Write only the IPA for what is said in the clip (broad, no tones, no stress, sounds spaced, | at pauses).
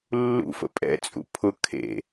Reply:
lː ṵ f ə̰ pʼ ɛ̰ t͡sʼ ṵ pʰ ʊ kʰ ḛ